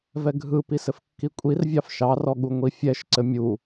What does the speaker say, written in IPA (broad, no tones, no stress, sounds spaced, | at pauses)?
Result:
v ɛ ɡʱ ɯ p i s ɘ f kː i kʷʼ i r vʲ ɑ f ʃ ɑ r ɔ ɠ u ŋʷ i fʲ ɛ ʃ ǀ ɘ mʲ u